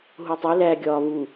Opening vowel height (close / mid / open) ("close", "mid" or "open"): close